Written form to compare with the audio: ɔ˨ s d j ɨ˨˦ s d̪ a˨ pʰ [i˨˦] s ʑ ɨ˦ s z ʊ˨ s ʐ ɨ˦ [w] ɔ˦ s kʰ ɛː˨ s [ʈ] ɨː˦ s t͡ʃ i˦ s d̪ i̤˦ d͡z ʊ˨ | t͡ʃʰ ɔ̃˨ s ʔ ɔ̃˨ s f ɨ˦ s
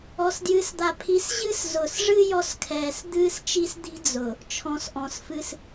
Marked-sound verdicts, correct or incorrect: correct, incorrect: j, incorrect: d̪

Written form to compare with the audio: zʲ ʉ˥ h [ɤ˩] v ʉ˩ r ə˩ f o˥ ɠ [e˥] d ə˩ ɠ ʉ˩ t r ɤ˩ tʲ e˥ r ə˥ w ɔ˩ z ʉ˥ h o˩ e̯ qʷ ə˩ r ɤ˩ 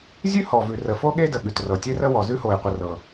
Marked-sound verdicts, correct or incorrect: incorrect: ɔ˩, correct

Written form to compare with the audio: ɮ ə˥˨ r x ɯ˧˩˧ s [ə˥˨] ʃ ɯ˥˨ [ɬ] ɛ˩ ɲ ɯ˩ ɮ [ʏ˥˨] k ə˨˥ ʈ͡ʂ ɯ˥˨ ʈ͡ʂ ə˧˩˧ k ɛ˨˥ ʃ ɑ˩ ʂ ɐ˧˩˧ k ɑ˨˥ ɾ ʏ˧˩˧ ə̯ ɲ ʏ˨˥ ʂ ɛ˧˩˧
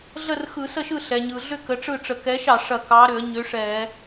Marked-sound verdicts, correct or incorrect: correct, correct, correct

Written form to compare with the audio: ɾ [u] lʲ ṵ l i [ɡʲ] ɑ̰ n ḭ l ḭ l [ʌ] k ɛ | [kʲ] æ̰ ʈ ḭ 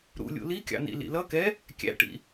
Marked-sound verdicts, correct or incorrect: incorrect: ṵ, incorrect: kʲ, correct, correct

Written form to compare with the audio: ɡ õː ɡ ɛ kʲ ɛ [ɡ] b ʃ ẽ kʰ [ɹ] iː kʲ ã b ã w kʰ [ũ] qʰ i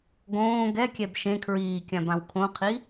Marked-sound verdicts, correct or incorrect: incorrect: none, correct, incorrect: õ

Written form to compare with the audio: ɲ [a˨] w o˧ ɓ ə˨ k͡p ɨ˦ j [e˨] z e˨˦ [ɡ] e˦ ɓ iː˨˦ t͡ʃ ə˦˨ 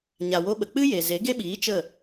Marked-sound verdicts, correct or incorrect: correct, correct, correct

